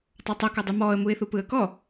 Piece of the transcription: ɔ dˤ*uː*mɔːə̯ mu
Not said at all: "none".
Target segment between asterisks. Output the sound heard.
u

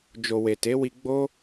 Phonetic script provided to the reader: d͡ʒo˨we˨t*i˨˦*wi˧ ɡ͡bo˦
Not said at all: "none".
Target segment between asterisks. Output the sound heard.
e˨˦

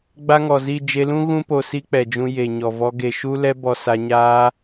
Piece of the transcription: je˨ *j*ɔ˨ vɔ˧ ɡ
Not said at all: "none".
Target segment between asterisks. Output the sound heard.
ɲ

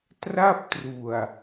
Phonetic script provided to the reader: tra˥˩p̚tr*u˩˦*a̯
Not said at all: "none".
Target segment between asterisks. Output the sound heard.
u˨˩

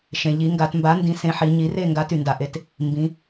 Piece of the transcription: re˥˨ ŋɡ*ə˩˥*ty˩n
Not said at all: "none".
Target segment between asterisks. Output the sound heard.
a˩˥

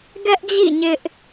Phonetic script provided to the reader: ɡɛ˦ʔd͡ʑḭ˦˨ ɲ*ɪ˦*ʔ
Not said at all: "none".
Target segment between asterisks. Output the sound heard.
ɪ˦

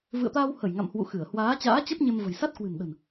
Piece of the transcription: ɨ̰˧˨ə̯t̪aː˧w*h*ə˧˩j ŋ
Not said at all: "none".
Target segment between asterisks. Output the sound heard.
h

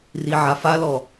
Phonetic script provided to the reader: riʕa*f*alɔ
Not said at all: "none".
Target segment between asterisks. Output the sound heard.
f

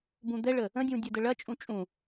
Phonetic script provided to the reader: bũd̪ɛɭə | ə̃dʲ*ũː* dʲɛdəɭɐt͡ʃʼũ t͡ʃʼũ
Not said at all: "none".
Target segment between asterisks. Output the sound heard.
ũ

